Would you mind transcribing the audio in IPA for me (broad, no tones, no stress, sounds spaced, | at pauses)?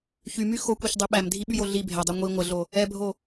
ç y m y x o kʷ i ç dˤ y ɓ æ m dʱ i ɓ y j o ɮ i bʱ ɛ dˤ ɛ ŋʷ i ŋʷ ə ɮ o | ɛ bʱ o